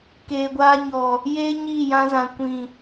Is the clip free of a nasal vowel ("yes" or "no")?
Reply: no